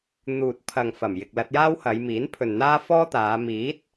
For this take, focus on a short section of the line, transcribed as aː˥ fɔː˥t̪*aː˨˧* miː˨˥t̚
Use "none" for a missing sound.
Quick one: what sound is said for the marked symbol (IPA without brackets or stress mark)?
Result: aː˨˧